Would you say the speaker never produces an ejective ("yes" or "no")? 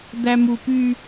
yes